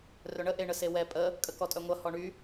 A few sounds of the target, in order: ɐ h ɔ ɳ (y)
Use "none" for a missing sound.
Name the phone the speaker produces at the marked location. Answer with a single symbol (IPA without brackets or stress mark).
y